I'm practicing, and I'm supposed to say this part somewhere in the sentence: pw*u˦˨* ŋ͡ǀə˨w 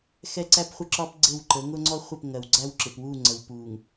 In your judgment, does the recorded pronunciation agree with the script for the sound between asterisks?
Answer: yes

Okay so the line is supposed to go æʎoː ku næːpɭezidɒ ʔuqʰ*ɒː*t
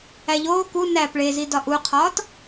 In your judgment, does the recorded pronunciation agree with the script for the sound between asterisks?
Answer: yes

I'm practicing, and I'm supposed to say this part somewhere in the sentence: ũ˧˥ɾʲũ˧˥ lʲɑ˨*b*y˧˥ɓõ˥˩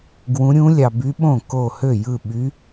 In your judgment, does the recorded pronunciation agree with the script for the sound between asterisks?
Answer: yes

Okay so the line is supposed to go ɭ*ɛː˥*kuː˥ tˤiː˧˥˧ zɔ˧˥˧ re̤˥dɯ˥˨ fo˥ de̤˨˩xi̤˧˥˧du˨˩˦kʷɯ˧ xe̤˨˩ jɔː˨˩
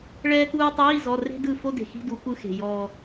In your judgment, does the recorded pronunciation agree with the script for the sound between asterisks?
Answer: yes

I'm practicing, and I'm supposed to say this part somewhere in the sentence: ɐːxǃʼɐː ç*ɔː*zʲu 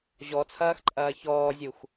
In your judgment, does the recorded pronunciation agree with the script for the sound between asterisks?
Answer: yes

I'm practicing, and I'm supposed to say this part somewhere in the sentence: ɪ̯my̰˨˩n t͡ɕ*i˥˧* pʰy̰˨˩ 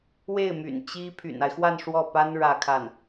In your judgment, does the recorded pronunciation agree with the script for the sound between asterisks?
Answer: no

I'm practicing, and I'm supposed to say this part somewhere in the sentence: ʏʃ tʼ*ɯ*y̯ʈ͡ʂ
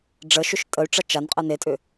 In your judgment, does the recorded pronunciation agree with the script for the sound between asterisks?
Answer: no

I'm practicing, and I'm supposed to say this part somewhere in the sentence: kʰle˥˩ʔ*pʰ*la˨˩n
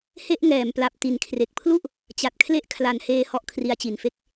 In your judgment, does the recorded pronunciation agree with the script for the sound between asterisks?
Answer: no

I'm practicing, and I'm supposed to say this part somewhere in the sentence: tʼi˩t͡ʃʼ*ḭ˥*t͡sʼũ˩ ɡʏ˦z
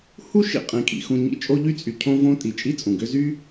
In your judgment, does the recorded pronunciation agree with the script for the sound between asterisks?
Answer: no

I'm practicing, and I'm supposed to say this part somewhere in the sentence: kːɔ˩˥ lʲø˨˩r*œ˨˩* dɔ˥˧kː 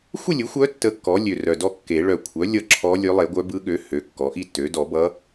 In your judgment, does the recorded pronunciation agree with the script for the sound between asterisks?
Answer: yes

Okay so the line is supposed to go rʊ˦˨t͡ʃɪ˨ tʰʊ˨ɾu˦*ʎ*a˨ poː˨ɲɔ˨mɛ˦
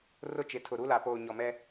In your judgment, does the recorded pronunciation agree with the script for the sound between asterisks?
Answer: no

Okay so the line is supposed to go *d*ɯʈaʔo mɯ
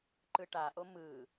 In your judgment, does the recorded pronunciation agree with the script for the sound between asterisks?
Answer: no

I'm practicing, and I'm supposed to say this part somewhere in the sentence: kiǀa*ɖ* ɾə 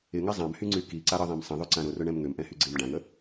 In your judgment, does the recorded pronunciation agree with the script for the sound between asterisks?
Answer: no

